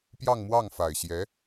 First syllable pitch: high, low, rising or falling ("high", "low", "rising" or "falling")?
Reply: falling